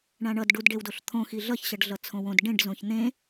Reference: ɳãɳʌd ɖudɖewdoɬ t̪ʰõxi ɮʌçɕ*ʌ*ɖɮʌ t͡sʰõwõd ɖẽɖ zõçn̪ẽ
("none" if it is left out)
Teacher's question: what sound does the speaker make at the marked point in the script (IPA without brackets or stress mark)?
ʌ